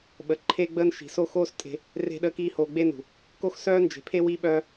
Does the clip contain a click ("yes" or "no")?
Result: yes